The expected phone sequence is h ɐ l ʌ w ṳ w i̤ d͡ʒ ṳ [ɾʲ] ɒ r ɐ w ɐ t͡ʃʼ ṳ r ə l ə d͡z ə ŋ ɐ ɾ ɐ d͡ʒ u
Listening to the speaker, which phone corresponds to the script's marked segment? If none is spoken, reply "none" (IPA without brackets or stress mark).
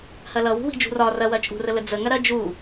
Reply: r